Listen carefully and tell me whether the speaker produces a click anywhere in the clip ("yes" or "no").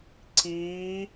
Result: yes